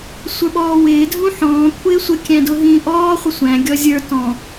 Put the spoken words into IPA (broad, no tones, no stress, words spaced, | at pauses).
sʷə˞ɓɔːwɪː dʱũħɔ̃ː kʷʰɪːsʷə kʲæ̃dʊɦĩːʔɔː χʷɪsʷæ̃ ɡʲɔzʲə˞ tɔ̃